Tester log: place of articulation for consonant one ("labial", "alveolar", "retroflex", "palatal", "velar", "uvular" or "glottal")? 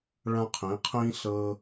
retroflex